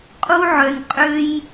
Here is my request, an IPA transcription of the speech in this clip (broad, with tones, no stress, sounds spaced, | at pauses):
qʼ u˦ ʕ œ˧ n qʼ ø˦ j